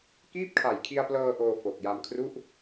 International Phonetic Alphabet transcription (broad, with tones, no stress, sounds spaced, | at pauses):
k iː˥˩ p̚ kʰ a˨˩ j kʰ i˧ a̯ p l ɤː˧ ʔ oː˧ f o˨˩ k̚ j a˧ m kʰ r u˥˩ ʔ